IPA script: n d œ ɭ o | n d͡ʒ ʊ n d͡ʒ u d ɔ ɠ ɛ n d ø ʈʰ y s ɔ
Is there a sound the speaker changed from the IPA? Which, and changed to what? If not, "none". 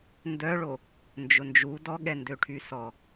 none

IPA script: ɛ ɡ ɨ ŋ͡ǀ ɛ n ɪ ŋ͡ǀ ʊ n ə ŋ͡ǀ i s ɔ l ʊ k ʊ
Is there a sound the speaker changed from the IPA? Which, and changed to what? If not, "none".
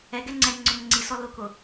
ɨ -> ɛ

